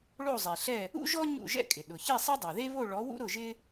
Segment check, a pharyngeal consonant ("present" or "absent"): absent